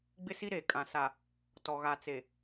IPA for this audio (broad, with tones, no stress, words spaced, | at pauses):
ɡ͡bɪ˦si˦ ɾeː˨kʼã˨ sa˨ | tɔ˨ɣa˨ t͡se˨